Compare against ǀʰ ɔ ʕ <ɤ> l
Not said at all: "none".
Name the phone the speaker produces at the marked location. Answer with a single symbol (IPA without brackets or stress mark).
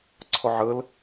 ɤ